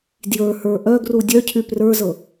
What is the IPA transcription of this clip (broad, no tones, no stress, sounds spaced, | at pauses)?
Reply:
d j ə˞ h ə˞ ʔ œ ɡ r u dʲ œ cʰ y p r ə˞ z ɤ